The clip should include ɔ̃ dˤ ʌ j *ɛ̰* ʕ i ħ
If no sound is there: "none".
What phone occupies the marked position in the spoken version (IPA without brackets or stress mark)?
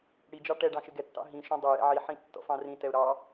ɛ̰